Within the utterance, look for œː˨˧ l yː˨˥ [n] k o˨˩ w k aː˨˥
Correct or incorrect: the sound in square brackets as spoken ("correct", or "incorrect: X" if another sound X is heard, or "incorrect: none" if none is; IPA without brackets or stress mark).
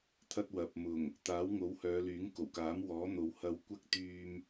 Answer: incorrect: ŋ